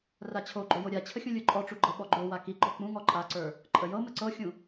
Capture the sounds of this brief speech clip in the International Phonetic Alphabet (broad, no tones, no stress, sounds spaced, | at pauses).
r a t͡ɕʰ o ɡ͡ǃ o j o ɾʲ a t͡ɕʰ ə xʲ ũ lʲ ə˞ ǃʼ ɔ ʈ͡ʂ u ɡ͡ǃ ɤ ɓ ɔ ɡ͡ǃ o w a k i ɡ͡ǃ ɔ k͡p ũ ŋ ɔ ǃʼ a ǀ ə˞ | ǃʼ ə j ɤ m ə ǀ ɤ xʲ ũ